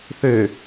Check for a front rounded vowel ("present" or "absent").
present